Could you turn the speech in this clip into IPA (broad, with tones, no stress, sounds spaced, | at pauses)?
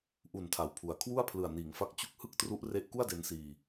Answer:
ʔ u˨˩ n tʰ a˨˩ w pʰ u˩˦ a̯ kʰ w u˥˩ a̯ pʰ l ɯ˨˩ a̯ n iː˩˦ ŋ f a˦˥ k̚ t͡ɕ u˥˩ k̚ h ɯ˥˩ k̚ t r u˦˥ ʔ r e˦˥ ʔ k u˥˩ a̯ d e˧ n s iː˧